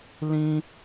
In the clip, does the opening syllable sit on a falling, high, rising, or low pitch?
high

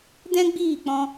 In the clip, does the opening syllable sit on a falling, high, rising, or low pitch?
high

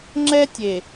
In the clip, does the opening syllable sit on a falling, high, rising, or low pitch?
high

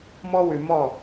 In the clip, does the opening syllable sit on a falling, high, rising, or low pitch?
high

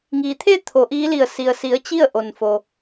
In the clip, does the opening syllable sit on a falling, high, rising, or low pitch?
low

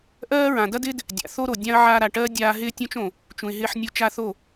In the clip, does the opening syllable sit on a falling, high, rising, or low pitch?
high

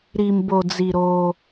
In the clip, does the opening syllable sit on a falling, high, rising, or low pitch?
low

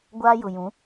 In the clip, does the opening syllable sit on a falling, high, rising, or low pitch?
high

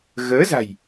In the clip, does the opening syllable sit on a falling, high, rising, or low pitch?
rising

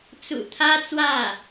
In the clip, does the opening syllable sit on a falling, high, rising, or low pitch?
low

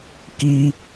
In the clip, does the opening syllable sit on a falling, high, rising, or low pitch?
high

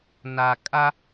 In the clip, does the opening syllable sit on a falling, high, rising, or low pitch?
low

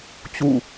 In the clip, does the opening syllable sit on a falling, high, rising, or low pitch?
falling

